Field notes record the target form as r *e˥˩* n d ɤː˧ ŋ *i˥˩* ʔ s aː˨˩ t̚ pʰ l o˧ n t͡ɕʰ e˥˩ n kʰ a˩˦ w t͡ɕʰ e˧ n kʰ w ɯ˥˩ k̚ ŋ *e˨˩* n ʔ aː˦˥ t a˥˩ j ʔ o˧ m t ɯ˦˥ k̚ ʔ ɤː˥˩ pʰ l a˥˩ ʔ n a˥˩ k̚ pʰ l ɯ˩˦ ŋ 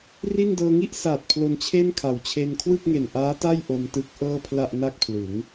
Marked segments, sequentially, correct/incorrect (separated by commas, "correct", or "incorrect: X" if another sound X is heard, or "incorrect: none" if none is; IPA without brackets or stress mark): incorrect: i˥˩, correct, correct